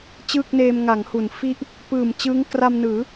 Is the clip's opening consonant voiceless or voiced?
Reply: voiceless